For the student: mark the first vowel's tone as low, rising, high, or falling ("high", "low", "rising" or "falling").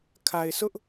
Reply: low